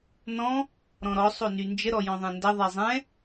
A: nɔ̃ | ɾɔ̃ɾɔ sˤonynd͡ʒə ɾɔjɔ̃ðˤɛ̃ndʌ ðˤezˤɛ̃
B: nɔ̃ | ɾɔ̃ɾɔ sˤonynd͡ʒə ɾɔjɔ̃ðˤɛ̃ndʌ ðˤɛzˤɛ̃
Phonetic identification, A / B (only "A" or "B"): B